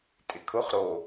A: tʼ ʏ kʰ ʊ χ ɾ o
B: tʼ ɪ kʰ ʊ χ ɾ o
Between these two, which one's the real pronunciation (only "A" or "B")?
B